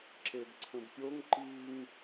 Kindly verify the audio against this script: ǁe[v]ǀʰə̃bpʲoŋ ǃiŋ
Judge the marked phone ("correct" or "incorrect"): incorrect